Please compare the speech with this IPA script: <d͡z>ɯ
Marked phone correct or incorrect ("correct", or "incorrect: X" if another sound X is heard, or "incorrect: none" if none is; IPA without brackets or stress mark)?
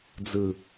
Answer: correct